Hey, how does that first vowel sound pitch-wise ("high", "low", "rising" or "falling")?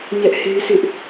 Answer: high